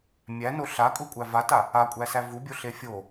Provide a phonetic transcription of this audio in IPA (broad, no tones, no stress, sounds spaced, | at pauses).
mʲ æ n o ɬ a kʼ u kʷʼ æ v a t a | a kʷʼ æ s æ v u bʲ o ɬ e fʲ o